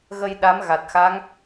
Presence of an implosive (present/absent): present